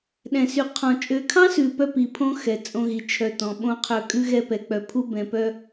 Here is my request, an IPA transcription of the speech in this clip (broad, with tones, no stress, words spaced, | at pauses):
ɗɛ̃˨sy˨qʰɔ̃˨ t͡ʃʼø˨kʰɑ̃˦sʉ˨ pœ˦pi˨pʰõ˦ xɛ˨t͡sʼõ˦ɣi˨ t͡ʃʰœ˨tɔ̃˨ɓõ˦qʰœ˦˨ kʼʉ˦ɣɛ˦ pɛ˨k͡pœ˨pʰu˦ bɛ̃˨pœ˦